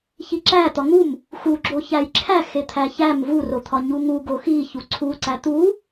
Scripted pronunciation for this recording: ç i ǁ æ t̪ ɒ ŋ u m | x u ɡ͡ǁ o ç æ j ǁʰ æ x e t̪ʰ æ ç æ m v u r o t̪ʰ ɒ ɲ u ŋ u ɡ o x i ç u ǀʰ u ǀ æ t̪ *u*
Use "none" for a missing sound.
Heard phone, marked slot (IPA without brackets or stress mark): u